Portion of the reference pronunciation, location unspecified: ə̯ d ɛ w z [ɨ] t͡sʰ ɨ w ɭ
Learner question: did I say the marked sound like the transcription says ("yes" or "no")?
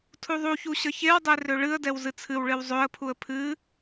yes